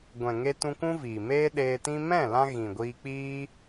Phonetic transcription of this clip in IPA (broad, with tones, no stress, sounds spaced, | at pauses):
ɡʷ ɛ̃˨ ŋ e˧ t ũ˧ k ũ˦ v iː˨ m eː˦ ɗ eː˧ t ĩ˦ m ɛ̃˦˨ l ã˧ ɣ ĩ˨ ɡʷ iː˧ k͡p iː˦